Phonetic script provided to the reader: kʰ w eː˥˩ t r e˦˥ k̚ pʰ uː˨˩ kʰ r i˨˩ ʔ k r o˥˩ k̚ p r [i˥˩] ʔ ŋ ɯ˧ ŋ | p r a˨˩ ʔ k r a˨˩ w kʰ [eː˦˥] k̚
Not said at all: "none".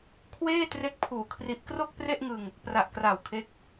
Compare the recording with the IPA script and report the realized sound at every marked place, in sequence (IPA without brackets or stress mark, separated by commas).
e˥˩, e˦˥